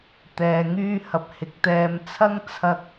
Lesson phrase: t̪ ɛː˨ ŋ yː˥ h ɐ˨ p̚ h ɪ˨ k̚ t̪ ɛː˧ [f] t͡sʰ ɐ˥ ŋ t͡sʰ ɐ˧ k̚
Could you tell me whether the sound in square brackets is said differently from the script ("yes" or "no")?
yes